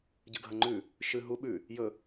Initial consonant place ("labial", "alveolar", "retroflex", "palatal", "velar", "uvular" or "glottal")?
palatal